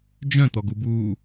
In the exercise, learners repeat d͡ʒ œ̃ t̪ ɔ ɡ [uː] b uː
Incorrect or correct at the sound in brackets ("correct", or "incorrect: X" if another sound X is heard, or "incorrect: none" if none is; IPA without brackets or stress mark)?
incorrect: u